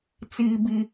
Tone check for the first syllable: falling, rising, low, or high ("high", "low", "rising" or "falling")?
high